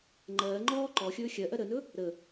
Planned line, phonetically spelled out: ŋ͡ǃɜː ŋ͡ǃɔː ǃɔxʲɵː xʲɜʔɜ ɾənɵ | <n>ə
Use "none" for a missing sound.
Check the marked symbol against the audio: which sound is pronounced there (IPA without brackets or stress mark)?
ɾ